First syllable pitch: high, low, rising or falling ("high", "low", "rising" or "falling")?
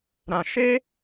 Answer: low